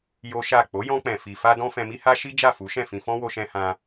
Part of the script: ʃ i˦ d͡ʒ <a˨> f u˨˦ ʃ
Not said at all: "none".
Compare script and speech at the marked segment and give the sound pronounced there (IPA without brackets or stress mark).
a˦˨